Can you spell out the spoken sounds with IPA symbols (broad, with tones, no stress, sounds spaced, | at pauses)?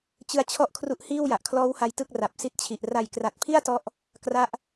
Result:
t͡ɕ ɯ˦˥ a̯ t͡ɕʰ ɔ˥˩ ʔ kʰ r u˦˥ ʔ h iː˥˩ w j a˨˩ ʔ kʰ l ɔː˦˥ w h a˧ j t ɯ˥˩ k̚ r a˨˩ p̚ s i˦˥ t̚ t͡ɕʰ i˨˩ ʔ r a˨˩ j k r a˨˩ t̚ pʰ i˥˩ a̯ t ɔ˥˩ ʔ | k r a˦˥ ʔ